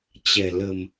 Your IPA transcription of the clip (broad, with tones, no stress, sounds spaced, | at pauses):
t͡ɕ ɛ̤˨˩ l ə̤˨˩ m